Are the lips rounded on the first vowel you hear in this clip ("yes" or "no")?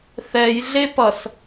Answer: no